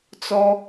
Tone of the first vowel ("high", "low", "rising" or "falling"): high